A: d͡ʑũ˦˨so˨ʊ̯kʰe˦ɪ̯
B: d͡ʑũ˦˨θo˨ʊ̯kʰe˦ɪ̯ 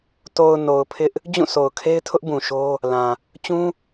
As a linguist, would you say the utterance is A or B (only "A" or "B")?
A